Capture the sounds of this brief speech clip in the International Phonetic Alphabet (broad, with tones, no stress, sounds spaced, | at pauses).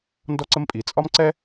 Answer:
n d ɔ˥ ǀ ə˥ m pʼ i˩˧˩ t͡sʼ ɒ˥ m ǀ ɛ˥